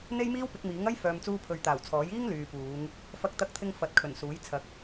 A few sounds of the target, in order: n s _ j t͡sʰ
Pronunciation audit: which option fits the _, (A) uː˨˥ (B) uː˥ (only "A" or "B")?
A